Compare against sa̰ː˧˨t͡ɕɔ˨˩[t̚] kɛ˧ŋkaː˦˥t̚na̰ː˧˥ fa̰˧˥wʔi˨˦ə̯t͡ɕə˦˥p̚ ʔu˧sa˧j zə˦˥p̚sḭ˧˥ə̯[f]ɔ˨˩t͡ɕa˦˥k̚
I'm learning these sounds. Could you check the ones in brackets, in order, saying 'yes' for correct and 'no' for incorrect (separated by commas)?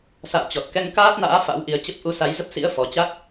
yes, yes